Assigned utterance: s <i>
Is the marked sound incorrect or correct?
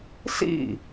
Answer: incorrect